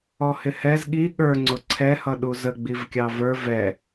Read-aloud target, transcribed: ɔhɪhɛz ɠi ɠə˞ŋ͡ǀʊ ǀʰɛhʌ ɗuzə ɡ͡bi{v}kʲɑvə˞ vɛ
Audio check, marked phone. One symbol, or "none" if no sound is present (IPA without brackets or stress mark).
v